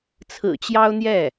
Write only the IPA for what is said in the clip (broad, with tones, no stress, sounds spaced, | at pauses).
t͡sʰ ɹ̩˨˩ t͡ɕ j ɑ˥ ʊ̯ n̪ j ɛ˥˩